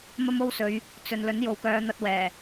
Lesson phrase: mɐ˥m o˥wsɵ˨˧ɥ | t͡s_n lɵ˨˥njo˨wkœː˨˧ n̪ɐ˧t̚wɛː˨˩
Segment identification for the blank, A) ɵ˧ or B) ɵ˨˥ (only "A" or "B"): A